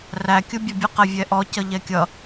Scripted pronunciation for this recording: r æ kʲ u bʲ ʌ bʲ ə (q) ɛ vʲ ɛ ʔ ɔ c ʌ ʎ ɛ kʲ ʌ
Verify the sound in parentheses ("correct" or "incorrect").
correct